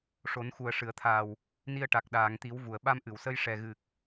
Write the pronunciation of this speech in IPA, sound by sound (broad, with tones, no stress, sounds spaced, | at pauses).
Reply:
ʂ o˨˩˦ n x u˨˩ ə̯ ʂ ɨ˨˩˨ ə̯ t̪ʰ a˨˩ w | n i˧ ə̯ ʈ a˨˩ k̚ ɗ aː˨˩˨ ŋ t̪ i˨˩˦ w v u˨˩˨ ə̯ ɓ a˧ m ʔ ɨ˨˩˨ w s ə˧ j ʂ ɛ˨˩ ɣ ɨ˨˩ k̚